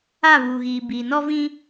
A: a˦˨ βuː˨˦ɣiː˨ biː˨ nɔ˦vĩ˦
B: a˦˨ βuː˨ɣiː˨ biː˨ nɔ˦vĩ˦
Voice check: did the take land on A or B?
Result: B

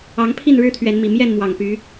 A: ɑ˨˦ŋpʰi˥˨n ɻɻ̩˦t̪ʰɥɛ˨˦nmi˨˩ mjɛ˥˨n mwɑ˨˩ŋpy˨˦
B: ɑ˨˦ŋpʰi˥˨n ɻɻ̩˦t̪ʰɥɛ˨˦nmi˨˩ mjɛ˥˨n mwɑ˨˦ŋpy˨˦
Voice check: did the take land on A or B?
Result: A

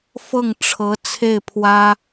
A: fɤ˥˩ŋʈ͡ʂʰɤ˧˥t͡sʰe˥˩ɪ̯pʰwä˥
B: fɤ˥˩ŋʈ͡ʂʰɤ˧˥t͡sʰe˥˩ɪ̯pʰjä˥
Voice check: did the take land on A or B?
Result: A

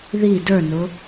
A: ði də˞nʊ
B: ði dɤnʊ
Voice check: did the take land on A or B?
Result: A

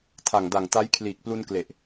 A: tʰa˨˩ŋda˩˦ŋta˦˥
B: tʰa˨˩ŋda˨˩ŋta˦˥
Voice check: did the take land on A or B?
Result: B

